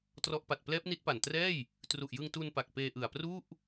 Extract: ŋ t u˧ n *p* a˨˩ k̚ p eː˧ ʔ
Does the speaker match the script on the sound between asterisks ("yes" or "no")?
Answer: yes